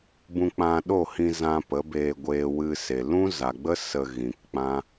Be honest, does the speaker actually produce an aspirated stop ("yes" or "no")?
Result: no